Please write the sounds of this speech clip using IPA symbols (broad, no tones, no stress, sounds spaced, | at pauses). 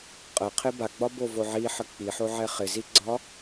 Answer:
qʼ ə qʰ ɪ b a ɡ͡b ɒ b o v o ʕ i ħ ə k͡p i ħ o ʕ ɛ χ ɪ z i ɡ͡ǀ ɒ